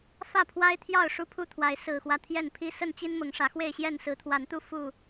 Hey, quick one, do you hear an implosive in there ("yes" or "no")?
no